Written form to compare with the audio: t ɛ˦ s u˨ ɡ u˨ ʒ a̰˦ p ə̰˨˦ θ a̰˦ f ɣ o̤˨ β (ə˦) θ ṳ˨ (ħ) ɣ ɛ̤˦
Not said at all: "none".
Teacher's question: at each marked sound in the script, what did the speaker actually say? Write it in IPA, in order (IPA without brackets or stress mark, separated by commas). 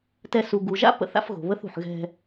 ə˦, ħ